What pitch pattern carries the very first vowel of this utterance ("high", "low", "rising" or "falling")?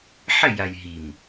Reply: falling